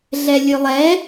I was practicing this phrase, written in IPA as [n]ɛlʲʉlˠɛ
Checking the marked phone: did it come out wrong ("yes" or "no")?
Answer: yes